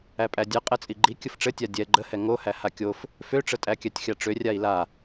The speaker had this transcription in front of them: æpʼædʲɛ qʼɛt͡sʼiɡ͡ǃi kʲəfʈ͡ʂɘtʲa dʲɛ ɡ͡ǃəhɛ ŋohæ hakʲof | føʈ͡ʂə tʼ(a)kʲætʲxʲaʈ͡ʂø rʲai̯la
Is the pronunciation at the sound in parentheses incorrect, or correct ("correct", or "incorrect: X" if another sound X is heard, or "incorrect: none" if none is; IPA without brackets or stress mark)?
incorrect: æ